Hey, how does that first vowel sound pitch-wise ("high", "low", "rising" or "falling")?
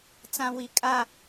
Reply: high